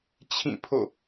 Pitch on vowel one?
falling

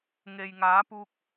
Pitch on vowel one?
low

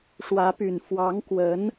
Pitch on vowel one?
rising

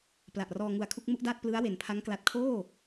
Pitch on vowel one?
low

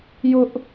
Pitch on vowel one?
high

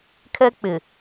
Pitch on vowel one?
high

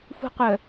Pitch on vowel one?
high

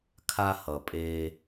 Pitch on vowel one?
low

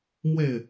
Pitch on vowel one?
falling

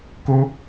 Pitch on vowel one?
high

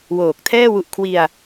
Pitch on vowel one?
low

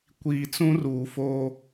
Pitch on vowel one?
low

